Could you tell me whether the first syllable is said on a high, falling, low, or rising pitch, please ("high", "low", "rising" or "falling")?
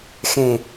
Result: low